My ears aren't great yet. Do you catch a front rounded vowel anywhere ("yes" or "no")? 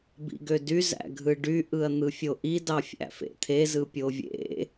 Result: yes